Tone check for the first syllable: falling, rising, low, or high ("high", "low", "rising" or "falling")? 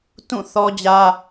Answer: falling